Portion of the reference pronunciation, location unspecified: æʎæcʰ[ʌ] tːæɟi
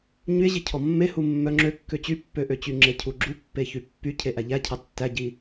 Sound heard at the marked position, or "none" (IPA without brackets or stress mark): ɑ